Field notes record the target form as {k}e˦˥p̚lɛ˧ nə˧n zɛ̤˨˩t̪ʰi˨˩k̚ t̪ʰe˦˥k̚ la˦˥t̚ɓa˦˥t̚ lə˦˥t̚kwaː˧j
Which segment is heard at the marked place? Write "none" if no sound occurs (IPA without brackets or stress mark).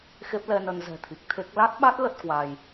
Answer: x